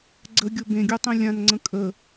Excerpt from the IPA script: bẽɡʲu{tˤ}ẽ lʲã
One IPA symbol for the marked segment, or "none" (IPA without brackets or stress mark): tˤ